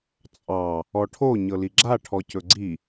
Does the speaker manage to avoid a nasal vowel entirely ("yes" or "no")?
yes